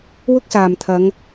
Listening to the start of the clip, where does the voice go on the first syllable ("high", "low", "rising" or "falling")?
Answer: high